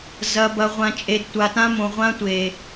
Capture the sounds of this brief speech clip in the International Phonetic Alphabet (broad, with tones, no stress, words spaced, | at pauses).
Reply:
zɐ˨bɐ˨ʁʷã˨ t͡ʃʼe˨dtʷa˨tã˦mõ˨ ʁʷã˦tʷe˨